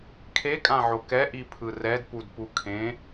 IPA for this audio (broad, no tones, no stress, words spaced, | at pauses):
kʰekʼãʕo kɛʔipʰɯ rɛdpudpu kʰẽ